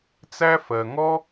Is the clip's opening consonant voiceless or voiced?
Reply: voiceless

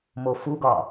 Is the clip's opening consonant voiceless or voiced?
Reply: voiced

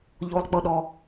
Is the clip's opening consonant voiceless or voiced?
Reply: voiced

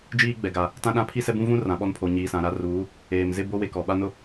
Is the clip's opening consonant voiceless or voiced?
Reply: voiced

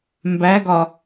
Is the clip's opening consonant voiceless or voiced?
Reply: voiced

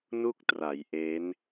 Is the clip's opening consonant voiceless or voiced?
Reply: voiced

